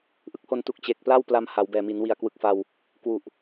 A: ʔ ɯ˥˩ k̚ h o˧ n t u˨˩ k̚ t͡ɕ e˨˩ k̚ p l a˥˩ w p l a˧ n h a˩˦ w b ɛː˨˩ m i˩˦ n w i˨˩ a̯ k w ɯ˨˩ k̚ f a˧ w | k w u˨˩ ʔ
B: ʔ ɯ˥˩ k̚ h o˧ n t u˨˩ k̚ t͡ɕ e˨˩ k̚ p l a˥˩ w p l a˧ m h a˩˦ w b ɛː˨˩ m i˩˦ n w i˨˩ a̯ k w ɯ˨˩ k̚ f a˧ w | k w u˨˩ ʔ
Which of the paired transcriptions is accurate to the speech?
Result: B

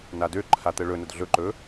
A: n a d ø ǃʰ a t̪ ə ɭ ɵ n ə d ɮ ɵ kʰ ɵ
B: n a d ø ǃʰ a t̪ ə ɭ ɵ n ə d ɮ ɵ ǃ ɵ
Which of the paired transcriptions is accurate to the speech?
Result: B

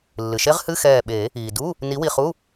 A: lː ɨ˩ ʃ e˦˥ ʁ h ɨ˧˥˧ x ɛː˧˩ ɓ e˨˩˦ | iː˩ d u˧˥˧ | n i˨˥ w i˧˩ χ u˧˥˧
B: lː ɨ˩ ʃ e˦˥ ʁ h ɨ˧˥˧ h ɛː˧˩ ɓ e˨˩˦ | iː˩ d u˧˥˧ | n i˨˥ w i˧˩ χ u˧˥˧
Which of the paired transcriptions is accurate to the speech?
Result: A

